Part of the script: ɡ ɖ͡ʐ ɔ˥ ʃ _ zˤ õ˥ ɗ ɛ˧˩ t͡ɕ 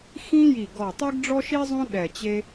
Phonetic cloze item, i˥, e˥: i˥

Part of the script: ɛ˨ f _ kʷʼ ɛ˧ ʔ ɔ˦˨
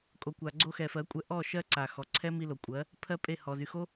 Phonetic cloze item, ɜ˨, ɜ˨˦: ɜ˨˦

